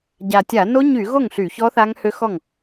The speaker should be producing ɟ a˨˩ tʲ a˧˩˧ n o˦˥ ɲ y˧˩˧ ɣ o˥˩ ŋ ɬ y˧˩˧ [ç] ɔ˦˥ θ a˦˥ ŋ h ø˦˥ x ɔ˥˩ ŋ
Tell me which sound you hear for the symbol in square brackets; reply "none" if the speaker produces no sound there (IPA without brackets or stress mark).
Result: ç